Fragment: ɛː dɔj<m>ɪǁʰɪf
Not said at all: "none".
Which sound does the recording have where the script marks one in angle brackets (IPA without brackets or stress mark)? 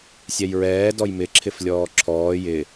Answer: m